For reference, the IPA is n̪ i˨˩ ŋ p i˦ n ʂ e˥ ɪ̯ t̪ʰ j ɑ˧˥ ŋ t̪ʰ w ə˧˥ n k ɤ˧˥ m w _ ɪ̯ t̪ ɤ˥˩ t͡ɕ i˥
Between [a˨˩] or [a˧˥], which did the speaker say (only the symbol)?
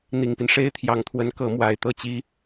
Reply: a˨˩